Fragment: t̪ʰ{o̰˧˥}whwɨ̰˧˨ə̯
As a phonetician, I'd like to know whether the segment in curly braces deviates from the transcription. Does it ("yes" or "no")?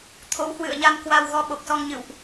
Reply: no